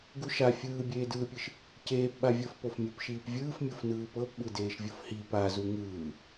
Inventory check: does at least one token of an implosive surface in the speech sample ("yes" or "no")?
yes